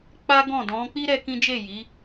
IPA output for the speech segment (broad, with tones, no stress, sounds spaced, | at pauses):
k͡p a˦ ɡ ɔ̃˦˨ d ɔ̃˨˦ k͡p i˦ ɾ ɛ˦ k ĩ˦ d͡ʒ e˦˨ j i˨˦